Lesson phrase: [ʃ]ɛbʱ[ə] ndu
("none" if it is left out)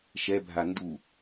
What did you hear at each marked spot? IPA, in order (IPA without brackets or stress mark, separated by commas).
ʃ, a